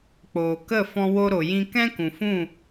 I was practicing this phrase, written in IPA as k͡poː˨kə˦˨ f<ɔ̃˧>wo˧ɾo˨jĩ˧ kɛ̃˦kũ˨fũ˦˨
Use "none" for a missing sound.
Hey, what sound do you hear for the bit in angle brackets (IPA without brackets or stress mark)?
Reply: ɔ̃˧